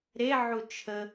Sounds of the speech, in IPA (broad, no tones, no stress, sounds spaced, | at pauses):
ɾ e ʕ u t͡ʃʰ ə